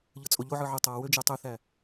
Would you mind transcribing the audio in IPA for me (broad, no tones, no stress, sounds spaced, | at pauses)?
ʎ ɯ t͡sʼ o ʎ o ʕ ɯ ʕ ɯ tˤ ɑ w ø d͡ʒ e tˤ ø θ æ